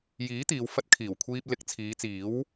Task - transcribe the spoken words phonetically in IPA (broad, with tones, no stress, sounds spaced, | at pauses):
j iː˨˥ t̪ iː˨˧ w f ɐ˧ t̚ kʰ iː˨˩ w kʷʰ iː˧ p̚ l ɪ˨˥ k̚ t͡sʰ iː˨˧ t͡s iː˨˥ w